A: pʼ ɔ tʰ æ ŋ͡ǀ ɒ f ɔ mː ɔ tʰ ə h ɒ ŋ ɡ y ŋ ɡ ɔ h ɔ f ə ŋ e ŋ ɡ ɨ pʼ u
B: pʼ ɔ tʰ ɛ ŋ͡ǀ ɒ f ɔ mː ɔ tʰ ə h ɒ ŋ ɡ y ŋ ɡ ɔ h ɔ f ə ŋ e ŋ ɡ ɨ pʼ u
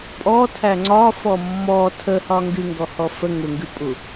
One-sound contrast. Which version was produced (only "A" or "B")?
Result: A